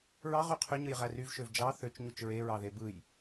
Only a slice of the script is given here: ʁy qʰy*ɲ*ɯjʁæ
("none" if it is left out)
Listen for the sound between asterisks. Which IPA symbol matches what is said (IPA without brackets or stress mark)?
ɲ